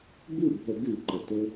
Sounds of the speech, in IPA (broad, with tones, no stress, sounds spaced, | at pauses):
b ɨ˥˩ bʱ ə˧˩˧ ɡ ʉ˧˩˧ ǃ ə˩ t ɵ˧